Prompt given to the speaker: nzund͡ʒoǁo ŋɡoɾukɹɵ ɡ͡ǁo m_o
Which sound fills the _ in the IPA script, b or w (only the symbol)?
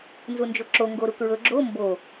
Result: b